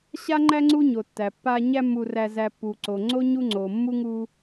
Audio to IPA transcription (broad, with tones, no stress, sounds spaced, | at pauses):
ɕ a˥ ŋ͡ǃ æ˥ ŋ͡ǀ u˦ ɲ o˩ tː æ˩ pː a˦ ɲ æ˦ mː u˨ r æ˨ z æ˨ pː u˩ ǀ o˩ ŋ͡ǀ o˥ ɲ u˦ ŋ͡ǀ o˩ mː u˥ ŋ u˦